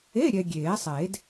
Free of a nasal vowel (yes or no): yes